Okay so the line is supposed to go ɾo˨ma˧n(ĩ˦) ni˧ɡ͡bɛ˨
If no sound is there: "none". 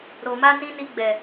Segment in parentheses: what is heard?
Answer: ĩ˧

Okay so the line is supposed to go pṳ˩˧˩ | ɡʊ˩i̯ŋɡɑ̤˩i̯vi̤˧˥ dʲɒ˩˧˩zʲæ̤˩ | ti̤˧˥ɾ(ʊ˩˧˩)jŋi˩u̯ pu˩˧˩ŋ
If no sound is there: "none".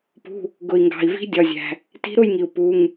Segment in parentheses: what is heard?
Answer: ʊ˥˨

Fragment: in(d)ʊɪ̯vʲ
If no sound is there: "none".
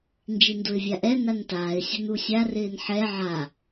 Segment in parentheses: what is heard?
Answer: d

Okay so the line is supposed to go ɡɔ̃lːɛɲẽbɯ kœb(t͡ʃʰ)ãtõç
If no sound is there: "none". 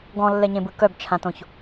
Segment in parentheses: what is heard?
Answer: t͡ʃʰ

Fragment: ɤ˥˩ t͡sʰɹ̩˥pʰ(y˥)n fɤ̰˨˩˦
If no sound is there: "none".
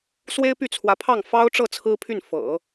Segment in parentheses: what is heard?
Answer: y˥˩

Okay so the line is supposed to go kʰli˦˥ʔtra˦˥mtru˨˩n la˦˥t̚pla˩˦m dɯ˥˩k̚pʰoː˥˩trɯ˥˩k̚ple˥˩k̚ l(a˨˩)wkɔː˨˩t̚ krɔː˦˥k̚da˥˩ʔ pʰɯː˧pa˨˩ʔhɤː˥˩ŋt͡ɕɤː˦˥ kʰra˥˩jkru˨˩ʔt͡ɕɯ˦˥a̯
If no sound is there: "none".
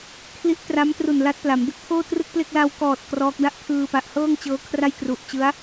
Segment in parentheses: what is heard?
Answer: a˧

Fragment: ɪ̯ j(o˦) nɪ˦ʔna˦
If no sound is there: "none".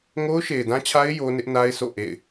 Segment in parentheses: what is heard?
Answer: o˦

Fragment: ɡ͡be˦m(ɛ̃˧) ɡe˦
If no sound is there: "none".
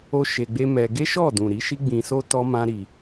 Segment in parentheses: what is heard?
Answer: ɛ˧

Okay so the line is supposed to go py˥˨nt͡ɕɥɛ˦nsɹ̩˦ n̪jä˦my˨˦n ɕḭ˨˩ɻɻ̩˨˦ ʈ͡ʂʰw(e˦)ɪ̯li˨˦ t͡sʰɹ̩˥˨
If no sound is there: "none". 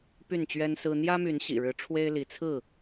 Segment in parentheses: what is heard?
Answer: e˦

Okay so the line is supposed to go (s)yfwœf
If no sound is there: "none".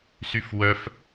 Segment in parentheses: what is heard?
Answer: s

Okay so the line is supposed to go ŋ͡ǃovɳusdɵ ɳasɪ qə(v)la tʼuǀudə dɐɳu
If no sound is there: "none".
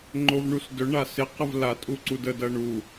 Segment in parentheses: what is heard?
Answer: v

